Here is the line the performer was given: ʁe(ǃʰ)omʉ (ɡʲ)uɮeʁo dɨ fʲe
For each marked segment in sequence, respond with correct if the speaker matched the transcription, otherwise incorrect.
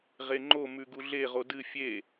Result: incorrect, incorrect

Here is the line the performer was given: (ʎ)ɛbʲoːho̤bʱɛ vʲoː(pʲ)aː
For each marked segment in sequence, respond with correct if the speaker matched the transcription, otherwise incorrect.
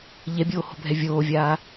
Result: correct, incorrect

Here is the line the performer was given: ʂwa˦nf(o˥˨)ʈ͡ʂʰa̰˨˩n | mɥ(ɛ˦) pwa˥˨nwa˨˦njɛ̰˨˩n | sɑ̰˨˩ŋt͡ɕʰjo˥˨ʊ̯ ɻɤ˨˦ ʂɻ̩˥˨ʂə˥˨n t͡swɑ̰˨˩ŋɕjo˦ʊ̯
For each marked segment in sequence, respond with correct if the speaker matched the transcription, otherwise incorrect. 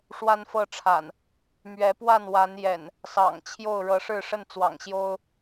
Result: incorrect, incorrect

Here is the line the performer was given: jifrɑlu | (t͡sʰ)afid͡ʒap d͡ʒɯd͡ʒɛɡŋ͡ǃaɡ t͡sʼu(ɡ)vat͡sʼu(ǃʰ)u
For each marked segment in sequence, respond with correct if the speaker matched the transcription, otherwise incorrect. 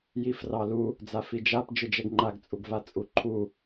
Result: incorrect, correct, correct

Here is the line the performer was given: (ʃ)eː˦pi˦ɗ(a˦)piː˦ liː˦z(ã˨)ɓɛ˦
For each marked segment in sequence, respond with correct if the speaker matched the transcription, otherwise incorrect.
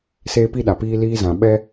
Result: incorrect, incorrect, correct

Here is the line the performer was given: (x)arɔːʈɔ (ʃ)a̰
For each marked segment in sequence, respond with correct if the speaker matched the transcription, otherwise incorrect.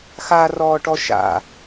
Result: correct, correct

